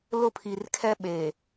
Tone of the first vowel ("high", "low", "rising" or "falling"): high